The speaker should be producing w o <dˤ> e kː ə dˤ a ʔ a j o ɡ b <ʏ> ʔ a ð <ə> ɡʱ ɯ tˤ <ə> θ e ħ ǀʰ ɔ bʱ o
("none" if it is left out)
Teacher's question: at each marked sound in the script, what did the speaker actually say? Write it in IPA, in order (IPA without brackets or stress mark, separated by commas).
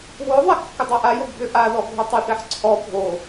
ðˤ, ʏ, ɔ, ə